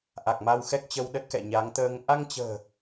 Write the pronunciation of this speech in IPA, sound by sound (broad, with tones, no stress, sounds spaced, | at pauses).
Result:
ʔ a˨˩ k̚ m a˧ w x ɛ˦˥ k̚ t͡ɕ ə˧ w ɗ ə˦˥ t̚ k ɛ̰˧˨ ɲ a˨˦ ŋ t̪ əː˧ ŋ ʔ a˧ ŋ t͡ɕ ə̤ː˨˩